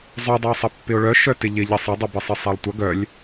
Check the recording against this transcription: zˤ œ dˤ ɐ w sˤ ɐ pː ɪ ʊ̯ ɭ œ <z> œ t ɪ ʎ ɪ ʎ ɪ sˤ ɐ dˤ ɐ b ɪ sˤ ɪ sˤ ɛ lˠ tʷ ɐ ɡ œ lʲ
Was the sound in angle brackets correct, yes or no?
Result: no